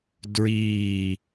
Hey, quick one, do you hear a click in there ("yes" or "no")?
no